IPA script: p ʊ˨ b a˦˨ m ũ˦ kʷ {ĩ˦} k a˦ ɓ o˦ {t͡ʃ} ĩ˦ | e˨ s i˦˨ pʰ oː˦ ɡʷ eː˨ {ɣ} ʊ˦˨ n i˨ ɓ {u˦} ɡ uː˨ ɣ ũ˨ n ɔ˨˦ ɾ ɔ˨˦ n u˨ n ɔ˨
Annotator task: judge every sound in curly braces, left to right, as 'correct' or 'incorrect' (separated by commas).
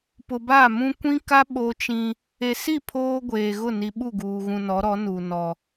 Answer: correct, correct, correct, incorrect